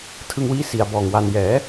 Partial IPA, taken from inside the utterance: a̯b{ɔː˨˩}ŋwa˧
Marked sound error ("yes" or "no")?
no